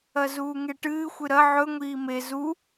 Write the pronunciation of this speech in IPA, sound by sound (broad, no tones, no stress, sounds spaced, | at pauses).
ɐ z uː ŋ e ʈ ɨː xʷ ɨ ɾ ɐ ʕ ɵ ŋʷ iː m e z u